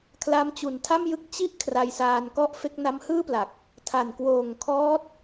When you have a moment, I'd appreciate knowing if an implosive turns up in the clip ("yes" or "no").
no